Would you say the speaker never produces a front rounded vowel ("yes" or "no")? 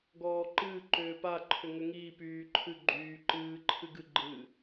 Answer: no